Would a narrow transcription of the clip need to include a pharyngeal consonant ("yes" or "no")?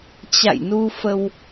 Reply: no